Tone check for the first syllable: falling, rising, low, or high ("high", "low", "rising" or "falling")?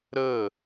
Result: falling